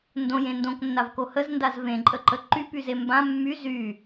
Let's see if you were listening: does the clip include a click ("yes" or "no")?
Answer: yes